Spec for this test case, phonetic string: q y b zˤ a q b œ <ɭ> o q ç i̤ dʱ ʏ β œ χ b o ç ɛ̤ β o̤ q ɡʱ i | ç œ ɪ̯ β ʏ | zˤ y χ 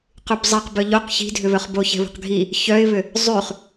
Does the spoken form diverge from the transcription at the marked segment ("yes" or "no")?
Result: yes